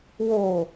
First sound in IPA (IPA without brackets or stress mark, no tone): w